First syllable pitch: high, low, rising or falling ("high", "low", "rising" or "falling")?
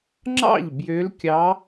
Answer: falling